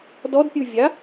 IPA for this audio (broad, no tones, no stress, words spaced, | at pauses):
dɔdpʲuvʲa